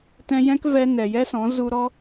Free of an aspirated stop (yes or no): yes